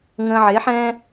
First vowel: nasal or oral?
nasal